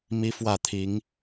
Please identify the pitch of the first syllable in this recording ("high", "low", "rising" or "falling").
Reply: high